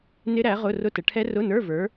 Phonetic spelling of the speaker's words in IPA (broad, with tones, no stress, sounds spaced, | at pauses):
n ɪ˦˥ ɾ æ˨˥ ʁ ʊ˧˥˧ r ʊ˧˥˧ t ə˩˧ ʈʰ ɛ˦˥ r ʊ˧˥˧ n ə˞˧˥˧ v ə˞˨˥